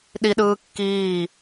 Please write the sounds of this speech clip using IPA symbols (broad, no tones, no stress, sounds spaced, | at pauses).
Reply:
ɗ i ɗ ɯː kː iː